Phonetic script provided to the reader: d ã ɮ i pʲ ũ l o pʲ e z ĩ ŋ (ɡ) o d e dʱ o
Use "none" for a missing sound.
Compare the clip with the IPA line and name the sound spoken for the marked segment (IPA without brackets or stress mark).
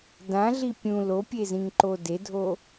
ǃ